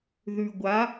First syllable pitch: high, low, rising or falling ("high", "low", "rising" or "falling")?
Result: low